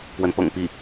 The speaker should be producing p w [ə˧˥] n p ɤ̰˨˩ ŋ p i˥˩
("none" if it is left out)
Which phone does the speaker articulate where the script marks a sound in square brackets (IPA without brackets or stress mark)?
ə˧˥